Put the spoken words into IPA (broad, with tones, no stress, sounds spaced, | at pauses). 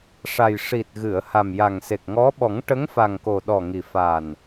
ʂ a˨˩ j ʂ i˨˩ t̚ ɣ ɨ˨˩˨ ə̯ h a˨˩ m j a˨˩ ŋ s e˨˩ k̚ ŋ ɔ˧˥ ɓ ɔ˨˩˦ ŋ ʈ ə˧˥ ŋ f a˨˩ ŋ k o˨˩ ɗ ɔ˨˩ ŋ i˨˩ f a˨˩ n